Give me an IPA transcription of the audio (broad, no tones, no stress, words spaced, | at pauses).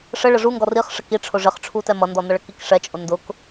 ʂə ɭəʐu ŋɡɔriχ ʂəkiʈ͡ʂʰʊ ʐɪχʈ͡ʂʰutɛ mʌndɔnʌɭə kikʂɛt͡ʃʼʊ ndʊk